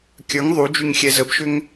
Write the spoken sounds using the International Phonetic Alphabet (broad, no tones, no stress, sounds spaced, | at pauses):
kʲ ə˞ ŋ ðˤ u d͡ʒ y ŋ xʲ ɛ z ə b ʃ ʏ ŋ